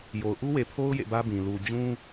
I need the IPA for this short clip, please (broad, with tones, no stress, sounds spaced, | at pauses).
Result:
j o˨ ʊ̯ ʔ u˦ w e˨ pʰ o˦ ʊ̯ j ḛ˦˨ b ä˦ b ĩ˨ l u˨ d͡ʑ ũ˦